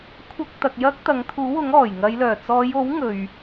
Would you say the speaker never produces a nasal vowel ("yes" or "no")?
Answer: yes